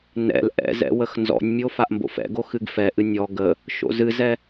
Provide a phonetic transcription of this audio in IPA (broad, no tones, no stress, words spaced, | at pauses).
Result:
nɛ̰l ʔɛ̰zɛ̰ wəxnzɔ̰nʲmʲo faʔmbo̰fɛ̰ɡo xɨɡfɛʔɨ nʲɔ ɡə | ʃo̰zɨzɛ